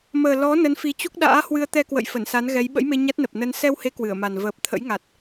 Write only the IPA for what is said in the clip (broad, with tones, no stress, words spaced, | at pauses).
məː˨˩ lɔ˨˦ nə˨˦nfi˨˦t͡ɕu˦˥k̚ ɗa̰ː˧˥hwɨ˧ə̯ t̪ɛ˧kwə̰˧˨j fə˧˩nsa˨˦n ɣɛ˨˦j ɓə̰˧˥jme˧ ɲa˦˥t̚nə˨˩p̚ nə˧n sɛ˧whe˨˦ kwɨ˧˩ə̯ma˨˩n vəː˨˩p̚t̪ʰə̰˧˥jŋa˨˩t̚